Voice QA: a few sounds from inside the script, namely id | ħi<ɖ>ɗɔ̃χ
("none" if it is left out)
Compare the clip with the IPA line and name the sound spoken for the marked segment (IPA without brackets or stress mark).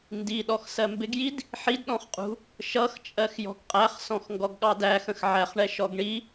d